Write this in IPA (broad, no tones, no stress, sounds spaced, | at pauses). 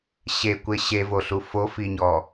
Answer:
ɕ e kʷ e ɕ e v o ɬ u f o f i ɲ ɔ